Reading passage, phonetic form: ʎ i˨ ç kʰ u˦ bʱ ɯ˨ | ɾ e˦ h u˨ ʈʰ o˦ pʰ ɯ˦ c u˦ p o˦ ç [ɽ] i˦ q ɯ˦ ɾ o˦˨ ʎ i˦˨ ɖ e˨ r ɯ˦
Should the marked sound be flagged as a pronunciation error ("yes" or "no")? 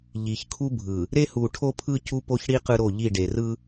no